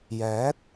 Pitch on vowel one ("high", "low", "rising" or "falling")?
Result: rising